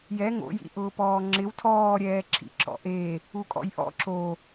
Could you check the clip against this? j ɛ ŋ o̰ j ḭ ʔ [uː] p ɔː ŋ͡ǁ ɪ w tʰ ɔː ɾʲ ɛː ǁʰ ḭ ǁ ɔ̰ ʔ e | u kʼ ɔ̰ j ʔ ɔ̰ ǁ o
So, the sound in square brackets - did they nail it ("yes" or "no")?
no